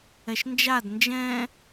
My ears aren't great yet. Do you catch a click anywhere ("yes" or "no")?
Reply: no